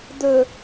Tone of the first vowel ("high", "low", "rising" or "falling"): low